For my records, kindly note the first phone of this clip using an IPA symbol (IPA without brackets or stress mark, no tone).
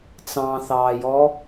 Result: t͡s